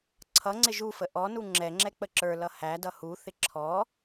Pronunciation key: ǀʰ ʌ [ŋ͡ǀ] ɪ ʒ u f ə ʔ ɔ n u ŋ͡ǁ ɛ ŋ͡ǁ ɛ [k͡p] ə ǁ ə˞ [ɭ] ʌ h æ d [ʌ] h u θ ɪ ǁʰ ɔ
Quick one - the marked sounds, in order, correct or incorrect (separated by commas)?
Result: correct, correct, incorrect, correct